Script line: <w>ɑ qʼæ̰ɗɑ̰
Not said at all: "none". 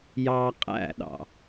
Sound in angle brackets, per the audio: j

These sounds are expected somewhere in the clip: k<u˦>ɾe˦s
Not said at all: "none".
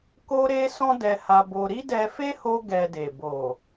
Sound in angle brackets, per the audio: o˦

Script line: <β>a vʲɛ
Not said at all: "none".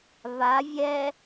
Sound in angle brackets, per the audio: β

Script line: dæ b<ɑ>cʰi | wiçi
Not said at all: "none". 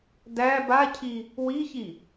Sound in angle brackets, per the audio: a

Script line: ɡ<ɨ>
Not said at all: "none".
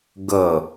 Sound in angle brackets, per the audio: ə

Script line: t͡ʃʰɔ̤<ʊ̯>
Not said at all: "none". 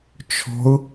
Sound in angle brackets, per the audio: ʊ̯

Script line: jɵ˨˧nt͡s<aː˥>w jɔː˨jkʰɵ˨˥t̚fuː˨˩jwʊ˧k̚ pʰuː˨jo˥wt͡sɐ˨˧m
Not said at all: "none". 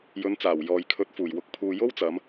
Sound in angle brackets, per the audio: aː˨˩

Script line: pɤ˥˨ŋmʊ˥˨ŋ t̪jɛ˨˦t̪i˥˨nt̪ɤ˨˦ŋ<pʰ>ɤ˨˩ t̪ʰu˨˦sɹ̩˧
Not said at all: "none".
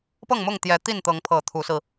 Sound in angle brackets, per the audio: pʰ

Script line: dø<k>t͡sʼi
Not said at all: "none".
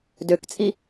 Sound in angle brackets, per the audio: k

